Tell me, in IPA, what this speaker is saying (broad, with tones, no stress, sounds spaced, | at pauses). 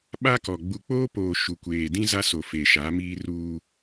ɓ a˦ k ɔ˨ ɡ͡b u˨ k͡p oː˦ p oː˨ ʃ u˨ kʷ eː˨ d ĩ˦ z a˦ s o˨ f e˨ ʃ a˨˦ m iː˦ r uː˦